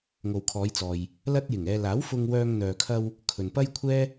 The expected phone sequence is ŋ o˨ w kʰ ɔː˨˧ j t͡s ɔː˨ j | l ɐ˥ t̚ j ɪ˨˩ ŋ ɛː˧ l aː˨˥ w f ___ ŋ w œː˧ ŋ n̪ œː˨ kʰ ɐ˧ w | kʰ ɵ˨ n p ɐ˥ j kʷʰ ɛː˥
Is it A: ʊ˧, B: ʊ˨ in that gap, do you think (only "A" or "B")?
A